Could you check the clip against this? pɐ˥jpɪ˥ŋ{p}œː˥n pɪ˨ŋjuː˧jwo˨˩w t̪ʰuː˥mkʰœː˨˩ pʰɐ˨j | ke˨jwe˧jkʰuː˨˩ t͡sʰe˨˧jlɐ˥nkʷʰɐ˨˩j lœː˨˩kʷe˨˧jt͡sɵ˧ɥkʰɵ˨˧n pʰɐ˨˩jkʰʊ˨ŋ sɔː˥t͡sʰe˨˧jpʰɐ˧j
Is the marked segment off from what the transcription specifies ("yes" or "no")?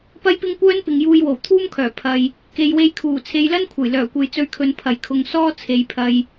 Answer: yes